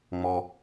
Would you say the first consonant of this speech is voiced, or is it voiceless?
voiced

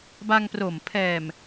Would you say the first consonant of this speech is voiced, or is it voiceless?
voiced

